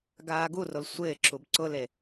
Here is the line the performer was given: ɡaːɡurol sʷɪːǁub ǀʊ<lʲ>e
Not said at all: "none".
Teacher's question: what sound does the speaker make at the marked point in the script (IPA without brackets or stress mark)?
l